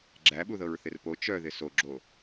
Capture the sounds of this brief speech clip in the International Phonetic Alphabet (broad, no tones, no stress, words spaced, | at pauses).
ɡ͡ǁæɓuðɤɹ θɪrpo t͡ʃœ ðɪsoɡ͡ǁo